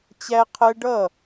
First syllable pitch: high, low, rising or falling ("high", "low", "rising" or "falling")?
high